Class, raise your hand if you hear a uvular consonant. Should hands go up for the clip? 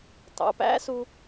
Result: no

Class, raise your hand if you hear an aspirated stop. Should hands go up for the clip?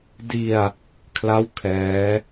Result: yes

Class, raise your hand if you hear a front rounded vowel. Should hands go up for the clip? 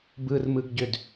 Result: yes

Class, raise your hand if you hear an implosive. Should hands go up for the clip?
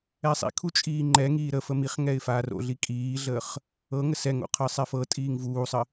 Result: no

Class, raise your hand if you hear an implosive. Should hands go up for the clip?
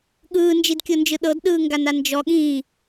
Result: yes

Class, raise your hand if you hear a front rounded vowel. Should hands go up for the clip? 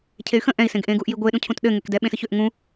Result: yes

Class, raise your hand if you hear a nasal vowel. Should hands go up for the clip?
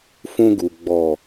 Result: yes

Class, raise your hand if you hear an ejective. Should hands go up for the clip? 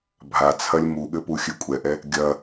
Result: yes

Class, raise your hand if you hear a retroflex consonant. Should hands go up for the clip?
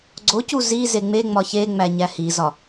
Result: no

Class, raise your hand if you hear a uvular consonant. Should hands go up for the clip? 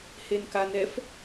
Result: no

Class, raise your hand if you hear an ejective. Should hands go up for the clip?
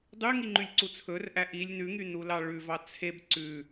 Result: no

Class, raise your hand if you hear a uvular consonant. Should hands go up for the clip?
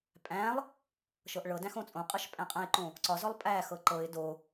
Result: yes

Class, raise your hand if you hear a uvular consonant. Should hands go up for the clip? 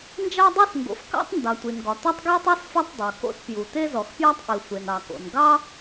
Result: no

